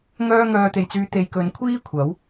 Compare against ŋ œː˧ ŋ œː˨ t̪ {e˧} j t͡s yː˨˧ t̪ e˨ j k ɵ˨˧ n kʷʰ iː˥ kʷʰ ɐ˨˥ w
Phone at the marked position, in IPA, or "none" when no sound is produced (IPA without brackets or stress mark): e˨˩